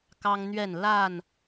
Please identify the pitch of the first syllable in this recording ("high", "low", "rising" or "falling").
high